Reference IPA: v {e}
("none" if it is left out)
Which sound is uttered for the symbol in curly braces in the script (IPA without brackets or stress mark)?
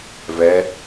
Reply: ɛ